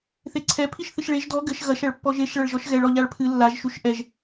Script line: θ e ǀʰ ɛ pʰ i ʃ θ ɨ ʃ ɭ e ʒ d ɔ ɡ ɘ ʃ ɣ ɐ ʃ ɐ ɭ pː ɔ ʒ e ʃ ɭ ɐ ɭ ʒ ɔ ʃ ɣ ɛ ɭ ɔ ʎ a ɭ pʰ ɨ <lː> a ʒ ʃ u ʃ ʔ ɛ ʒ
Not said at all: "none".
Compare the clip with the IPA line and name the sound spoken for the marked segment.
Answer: lː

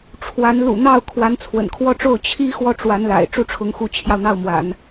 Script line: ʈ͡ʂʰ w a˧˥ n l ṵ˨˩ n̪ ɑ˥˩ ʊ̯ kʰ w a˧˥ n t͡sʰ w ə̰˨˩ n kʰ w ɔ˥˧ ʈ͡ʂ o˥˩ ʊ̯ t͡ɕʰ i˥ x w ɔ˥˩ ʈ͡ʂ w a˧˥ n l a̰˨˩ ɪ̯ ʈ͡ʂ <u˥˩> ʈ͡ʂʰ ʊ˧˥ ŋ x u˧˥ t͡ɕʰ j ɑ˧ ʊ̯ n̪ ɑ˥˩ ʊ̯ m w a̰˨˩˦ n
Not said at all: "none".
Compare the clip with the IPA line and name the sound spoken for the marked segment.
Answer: u˥˩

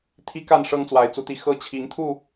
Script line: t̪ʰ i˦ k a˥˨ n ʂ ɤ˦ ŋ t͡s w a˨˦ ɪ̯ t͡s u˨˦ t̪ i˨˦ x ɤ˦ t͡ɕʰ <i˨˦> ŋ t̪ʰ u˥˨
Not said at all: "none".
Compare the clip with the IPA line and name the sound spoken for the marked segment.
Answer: i˨˦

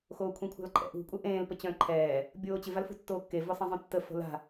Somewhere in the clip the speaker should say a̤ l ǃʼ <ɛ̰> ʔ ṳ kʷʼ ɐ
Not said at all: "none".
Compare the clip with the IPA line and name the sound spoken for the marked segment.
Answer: ɛ̰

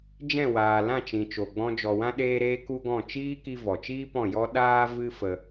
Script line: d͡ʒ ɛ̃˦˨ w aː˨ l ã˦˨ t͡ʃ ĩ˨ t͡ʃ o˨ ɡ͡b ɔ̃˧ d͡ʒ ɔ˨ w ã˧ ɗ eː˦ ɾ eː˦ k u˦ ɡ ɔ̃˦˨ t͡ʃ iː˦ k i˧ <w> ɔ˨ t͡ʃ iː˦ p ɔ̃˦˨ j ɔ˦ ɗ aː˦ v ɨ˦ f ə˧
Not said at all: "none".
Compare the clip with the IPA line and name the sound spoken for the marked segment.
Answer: v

